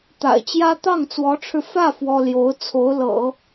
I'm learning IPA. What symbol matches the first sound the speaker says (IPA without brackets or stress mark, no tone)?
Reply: t̪